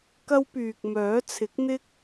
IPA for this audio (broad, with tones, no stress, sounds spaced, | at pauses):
k ɐ˥ w p yː˨ k̚ m œː˨˥ t͡sʰ ɪ˨˥ k̚ n̪ ɪ˥ k̚